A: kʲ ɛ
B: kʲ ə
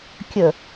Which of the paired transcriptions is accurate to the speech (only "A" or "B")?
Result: B